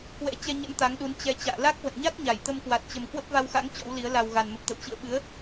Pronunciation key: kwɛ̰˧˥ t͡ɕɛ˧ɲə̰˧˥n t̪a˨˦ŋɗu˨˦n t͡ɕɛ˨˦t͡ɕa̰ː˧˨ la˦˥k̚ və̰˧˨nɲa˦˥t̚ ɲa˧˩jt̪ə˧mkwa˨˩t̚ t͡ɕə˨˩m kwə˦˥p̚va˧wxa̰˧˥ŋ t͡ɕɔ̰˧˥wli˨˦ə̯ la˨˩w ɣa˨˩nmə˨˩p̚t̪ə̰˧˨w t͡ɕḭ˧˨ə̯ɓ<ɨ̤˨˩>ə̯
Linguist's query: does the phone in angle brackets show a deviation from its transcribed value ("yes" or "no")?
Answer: yes